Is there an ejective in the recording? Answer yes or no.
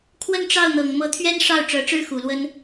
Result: no